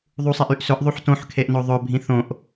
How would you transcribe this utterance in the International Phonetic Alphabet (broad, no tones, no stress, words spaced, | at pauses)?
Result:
ðˤusˤeʔ yʔsɵʔ ðˤuħtõħkʰeʔno ðˤɵ bʱĩθõʔ